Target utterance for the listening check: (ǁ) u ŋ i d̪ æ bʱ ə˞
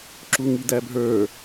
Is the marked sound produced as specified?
yes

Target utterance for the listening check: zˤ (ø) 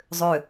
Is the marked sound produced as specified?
yes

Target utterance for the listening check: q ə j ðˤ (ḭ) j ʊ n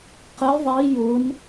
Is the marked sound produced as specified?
no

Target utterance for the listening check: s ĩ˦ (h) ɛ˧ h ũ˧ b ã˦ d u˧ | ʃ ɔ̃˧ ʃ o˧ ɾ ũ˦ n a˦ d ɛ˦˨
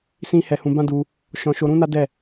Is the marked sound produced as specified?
yes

